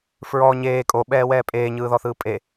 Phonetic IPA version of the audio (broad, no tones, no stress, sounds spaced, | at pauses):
f ɹ ɔ ɲ eː kʼ o ɓ ɛː w ɛː pʼ eː ɲ ɯː ð ɔ θ ɯː pʼ e